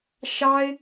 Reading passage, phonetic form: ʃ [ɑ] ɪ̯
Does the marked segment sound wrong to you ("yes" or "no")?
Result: no